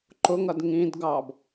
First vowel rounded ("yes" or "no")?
yes